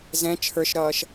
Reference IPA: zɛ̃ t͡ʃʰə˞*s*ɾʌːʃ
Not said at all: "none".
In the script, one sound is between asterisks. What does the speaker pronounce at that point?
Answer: ʃ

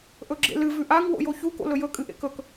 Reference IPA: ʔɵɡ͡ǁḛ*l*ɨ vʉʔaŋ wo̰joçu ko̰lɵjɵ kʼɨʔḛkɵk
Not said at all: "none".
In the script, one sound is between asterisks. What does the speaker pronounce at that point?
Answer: l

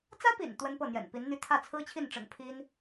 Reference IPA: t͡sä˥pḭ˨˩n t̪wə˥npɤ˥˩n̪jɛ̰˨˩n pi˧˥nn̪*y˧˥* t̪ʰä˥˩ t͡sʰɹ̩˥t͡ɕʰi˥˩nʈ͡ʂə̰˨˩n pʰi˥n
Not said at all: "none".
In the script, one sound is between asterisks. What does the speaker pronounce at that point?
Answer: y˥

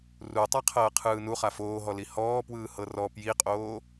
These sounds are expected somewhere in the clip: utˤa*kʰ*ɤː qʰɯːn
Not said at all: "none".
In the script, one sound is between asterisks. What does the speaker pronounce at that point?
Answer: qʰ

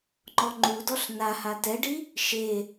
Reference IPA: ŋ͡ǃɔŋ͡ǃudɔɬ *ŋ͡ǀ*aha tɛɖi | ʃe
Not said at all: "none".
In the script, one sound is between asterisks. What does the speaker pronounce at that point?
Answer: n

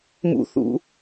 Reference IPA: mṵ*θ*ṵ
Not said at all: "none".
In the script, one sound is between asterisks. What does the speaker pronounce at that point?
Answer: θ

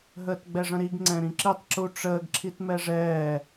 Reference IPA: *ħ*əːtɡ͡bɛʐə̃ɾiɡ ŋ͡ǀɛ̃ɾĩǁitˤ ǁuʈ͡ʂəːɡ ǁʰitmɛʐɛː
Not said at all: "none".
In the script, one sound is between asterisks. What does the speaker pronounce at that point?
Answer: ɦ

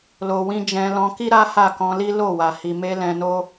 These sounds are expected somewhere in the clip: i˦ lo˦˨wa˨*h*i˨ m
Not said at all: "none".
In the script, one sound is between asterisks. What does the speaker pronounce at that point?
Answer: h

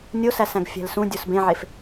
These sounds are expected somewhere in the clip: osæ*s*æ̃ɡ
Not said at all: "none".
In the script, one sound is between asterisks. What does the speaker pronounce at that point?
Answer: s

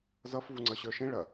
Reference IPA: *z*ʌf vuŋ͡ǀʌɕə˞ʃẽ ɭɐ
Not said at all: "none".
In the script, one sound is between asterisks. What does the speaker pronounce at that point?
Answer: z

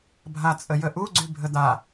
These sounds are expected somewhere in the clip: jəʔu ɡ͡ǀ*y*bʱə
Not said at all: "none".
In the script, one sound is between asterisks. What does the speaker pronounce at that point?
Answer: y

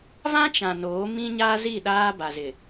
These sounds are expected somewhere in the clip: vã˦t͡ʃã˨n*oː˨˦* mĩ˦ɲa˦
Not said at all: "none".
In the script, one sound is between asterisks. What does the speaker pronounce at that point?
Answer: oː˨˦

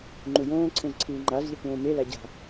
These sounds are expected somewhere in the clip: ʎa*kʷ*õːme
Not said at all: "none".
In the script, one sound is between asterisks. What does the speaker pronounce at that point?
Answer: kʷ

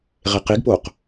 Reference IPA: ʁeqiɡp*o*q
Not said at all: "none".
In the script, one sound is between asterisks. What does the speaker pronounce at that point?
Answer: o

